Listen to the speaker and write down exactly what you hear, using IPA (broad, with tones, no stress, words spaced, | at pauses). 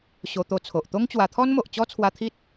ɕo˧t̪o˧t͡sʰo˨ʔ t̪o˦ŋt͡ɕwa˧ t̪ʰɔ˦nmo˨ʔt͡ɕɔ˦t͡sʰwa˧ t̪ʰi˦t̚